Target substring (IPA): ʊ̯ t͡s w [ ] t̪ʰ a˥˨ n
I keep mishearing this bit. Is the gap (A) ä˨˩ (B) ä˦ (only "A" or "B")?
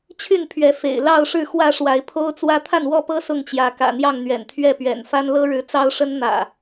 B